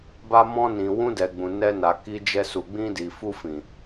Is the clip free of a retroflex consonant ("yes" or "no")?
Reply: yes